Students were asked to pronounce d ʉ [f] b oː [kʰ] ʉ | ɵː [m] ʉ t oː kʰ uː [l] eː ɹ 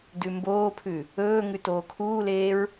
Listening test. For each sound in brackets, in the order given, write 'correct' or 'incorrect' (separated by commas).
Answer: incorrect, incorrect, incorrect, correct